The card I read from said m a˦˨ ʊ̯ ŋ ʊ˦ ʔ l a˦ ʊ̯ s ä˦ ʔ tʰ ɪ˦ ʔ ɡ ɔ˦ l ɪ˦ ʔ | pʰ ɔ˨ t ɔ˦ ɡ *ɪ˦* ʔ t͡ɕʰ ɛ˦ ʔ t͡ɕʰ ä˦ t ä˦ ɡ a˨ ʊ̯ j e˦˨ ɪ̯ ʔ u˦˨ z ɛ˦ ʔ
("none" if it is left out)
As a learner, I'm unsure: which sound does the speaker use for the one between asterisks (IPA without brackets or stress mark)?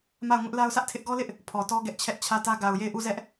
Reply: ɛ˦